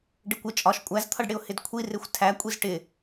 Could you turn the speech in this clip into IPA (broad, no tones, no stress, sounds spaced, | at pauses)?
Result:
ɖ ɪ kʷ ɪ t͡ʃʼ ɒ ʃ kʷʼ æ z t̪ʰ ʌ ɖ ɽ ɪ ʊ̯ h ɪ d kʷʰ i r ɪ xʷ tʰ æ kʷʼ i z ʈ ɪ